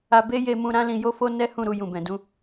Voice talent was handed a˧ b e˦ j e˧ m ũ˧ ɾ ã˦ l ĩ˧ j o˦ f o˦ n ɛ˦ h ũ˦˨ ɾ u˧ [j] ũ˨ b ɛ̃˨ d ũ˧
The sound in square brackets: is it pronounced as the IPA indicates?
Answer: yes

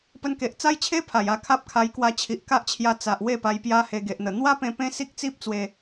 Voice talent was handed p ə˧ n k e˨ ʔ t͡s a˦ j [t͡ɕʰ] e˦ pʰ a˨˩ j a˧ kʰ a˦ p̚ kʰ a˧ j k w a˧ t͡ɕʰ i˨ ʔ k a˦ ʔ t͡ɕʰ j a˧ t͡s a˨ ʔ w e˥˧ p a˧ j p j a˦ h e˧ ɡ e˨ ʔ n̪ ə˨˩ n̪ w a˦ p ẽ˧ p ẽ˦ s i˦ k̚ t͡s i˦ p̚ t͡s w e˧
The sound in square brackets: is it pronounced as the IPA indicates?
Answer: yes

